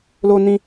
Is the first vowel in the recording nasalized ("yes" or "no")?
no